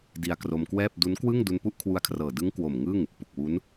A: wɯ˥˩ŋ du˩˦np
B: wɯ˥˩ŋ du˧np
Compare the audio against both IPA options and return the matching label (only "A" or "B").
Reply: B